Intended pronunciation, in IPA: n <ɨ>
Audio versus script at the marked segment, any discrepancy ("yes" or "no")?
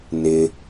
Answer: yes